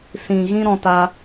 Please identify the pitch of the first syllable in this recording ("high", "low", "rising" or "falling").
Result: low